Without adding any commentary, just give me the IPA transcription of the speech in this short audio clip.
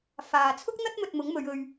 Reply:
f aː˨ t͡sʰ ʊ˥ k̚ n̪ ɐ˥ t̚ m ɵ˧ t̚ m ʊ˨˥ ŋ m ɵ˨˧ ɥ ɵ˧ ɥ

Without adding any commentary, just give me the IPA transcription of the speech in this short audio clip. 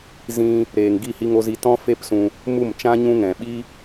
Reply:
z ĩ˧ | ɾ eː˨ ŋ ɡ i˦˨ h i˧ ŋ o˧ z i˧ t ɔ̃˦ f e˦ p s ũ˧ | m u˦˨ m t͡ʃ ã˦ ɲ ũ˧ ŋ ɛ̃˨ ɓ i˦

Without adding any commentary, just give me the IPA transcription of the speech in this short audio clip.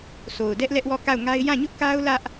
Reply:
sʰ o˨ ʊ̯ d ɛ˦ ʔ l ɛ˦ ʔ w ɔ˦˨ k a˦˨ ʊ̯ ŋ a˦ ɪ̯ j ã˦˨ ɲ ʊ˦ ʔ k a˦ ʊ̯ l ä˦ ʔ

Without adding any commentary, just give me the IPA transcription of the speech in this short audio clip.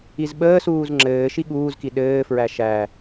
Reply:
i z ɓ əː s uː z ŋ͡ǁ ɘː ʃ i ɠ uː z k i ɗ ɘː f ɹ æ ʃ æ

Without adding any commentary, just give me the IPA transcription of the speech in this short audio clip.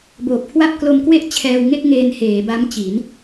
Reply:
b oː˨˩ p̚ kʰ w a˥˩ p̚ k l o˧ m k w e˥˩ ʔ t͡ɕʰ ɛː˧ w ŋ e˥˩ k̚ ŋ eː˧ n h eː˩˦ b a˦˥ m t͡ɕ i˩˦ n

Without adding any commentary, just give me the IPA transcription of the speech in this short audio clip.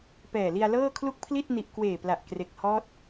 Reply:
p ɛː˨˩ l i˧ a̯ l ɤː˥˩ kʰ l u˥˩ k̚ pʰ l i˥˩ t̚ n i˨˩ ʔ k w eː˨˩ p l a˨˩ ʔ k r e˨˩ k̚ h ɔː˦˥ t̚

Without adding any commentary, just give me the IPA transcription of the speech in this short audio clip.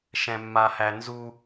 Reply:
ʃ ɛ̃ mː a h æ n z u

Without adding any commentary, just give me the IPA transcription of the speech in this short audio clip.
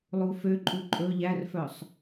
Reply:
lˠ u f ø ǃʼ u ǃʼ ɵ ʎ æ r f œ sˤ

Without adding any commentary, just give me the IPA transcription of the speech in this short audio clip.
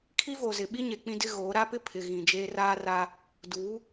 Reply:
kʰ i˦ v o˨ z ɪ˨ ɓ i˦ ɲ e˨ k͡p ĩ˦ d ɪ˦ ɣ oː˨˦ ɾ a˦ p ɪ˦ pʰ ɪ˨ ɣ ĩ˨ d͡ʒ eː˦ r aː˦ r aː˦ | d uː˨˦

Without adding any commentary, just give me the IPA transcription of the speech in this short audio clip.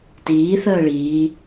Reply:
t iː θ əː ɭ iː

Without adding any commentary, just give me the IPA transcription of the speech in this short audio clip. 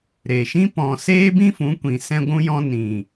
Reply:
ɾ e˨ ʃ ĩ˦ p ɔ̃˨ s eː˦ b ĩ˦ f ũ˨˦ kʷ ĩ˨ s ɛ̃˧ ɡʷ ũ˧ j ɔ̃˧ n ĩ˨

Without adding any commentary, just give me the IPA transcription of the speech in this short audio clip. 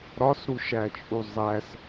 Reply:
ɾ ɒ s ɾ u ʃ æ t͡ʃʼ u zˤ æ s

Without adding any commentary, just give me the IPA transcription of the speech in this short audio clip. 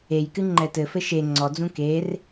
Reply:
e j k ɨ ŋ͡ǃ ɛ t ɘ f ɘ ʃ e ŋ͡ǀ ɔ d͡z ũ k e r

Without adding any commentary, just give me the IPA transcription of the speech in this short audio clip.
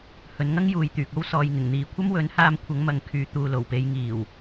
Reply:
h ɵ˨˧ n ŋ ɐ˥ ŋ j uː˨ j t̪ yː˨ k̚ o˥ w s ɔː˨ j ŋ ɪ˨˩ ŋ n̪ iː˨ kʷʰ ɐ˥ m w ɵ˨˥ n h aː˧ m kʷʰ ɐ˨˥ ŋ m ɐ˨˧ ŋ kʰ yː˨˧ t̪ uː˨ l o˨˩ w p e˨˧ j ŋ iː˨˩ w

